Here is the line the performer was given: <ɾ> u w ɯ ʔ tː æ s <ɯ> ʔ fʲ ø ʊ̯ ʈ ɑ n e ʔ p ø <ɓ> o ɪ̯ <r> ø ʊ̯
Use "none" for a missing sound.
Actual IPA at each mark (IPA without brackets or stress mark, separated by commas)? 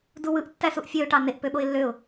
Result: d, u, ɓ, lː